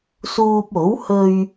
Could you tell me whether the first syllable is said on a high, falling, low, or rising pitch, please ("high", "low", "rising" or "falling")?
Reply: low